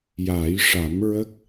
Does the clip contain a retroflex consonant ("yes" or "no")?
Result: yes